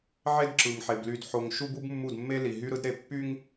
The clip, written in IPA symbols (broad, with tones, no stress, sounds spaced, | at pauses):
ʕ e˦ d ǁ ɯ˨ ŋ ħ e˨ b l y˨ d ħ o˨ ŋ ʃ u˦ b u˦ b mː u˦˨ d mː e˦ l i˨ ɦ y˦ ɾ ɯ˦ d ɾ e˨ pː y˦ ŋ